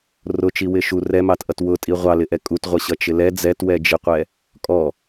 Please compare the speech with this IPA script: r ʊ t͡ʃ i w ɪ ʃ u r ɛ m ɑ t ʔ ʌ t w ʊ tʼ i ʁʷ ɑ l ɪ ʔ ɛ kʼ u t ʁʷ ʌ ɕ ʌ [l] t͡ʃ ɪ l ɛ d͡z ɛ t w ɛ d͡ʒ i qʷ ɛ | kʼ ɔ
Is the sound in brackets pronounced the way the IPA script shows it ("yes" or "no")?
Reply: no